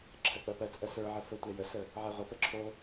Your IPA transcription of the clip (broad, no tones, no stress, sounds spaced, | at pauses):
ǁʰ ɜ k͡p ɜ p ɜ t͡sʼ ɜ s ə˞ ʕ ə f ə tʷ ɛ j ə s ə | ʕ ɛ ʁʷ ə p ə ǁʰ o